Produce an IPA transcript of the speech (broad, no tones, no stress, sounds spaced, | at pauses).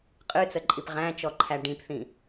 qʼ ɨ t͡s ə ǃʼ i p ʁ æ̃ t͡ʃ ɔ ǃʰ æ ɖ ĩ p θ ĩ